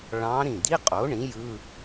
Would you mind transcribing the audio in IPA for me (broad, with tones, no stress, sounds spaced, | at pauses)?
ɭ ɑ̃˧˥ ɾ ĩ˧˩ d̪ i˧˥˧ qʼ o˩˥ ɳ ĩ˩˥ j ɯ˧˥˧